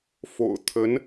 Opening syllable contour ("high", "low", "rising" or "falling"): low